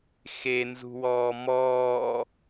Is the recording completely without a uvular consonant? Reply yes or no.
yes